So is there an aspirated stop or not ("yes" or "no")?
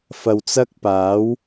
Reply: no